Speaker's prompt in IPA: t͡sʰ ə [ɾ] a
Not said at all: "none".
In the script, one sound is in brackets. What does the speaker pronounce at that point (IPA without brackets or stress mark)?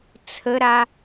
ɾ